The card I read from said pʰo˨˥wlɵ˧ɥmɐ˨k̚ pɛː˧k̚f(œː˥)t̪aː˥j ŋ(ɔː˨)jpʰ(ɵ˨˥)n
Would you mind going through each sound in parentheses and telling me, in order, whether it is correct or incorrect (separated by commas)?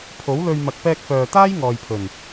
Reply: incorrect, correct, incorrect